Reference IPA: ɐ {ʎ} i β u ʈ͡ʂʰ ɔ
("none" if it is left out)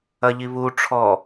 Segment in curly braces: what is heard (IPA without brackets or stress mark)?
ʎ